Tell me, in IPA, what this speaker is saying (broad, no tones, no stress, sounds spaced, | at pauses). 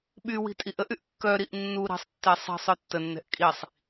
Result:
ɓ y w i̤ tʼ i ʔ ə ʔ y ʔ kː œ ɾ i ʔ nː u ɾ i̤ sˤ tː e sˤ i̤ sˤ œ tː ə nː ɛ̤ ʔ kʼ i sˤ